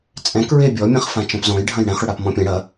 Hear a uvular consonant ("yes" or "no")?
yes